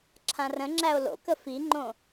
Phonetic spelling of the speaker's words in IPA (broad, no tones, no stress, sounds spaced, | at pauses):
ǁʰ ã r ə̃ ŋ͡ǁ æ o̯ l o̰ k ə f i ŋ͡ǃ õ